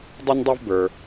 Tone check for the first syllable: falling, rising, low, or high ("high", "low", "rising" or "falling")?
high